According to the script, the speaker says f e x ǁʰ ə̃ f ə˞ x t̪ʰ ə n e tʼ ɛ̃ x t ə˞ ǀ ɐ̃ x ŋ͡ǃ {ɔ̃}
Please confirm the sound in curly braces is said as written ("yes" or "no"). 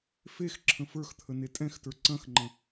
no